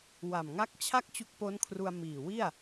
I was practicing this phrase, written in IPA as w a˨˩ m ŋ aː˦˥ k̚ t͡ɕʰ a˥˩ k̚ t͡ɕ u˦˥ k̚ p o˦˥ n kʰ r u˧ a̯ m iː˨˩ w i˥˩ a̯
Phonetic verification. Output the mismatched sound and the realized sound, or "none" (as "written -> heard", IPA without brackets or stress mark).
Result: aː˦˥ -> a˦˥